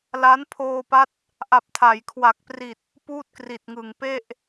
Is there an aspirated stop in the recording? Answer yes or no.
yes